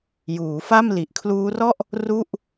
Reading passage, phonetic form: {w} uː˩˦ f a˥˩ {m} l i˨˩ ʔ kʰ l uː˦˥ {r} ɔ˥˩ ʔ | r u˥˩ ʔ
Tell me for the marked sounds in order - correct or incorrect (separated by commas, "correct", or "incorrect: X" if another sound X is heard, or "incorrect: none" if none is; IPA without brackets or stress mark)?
incorrect: j, correct, correct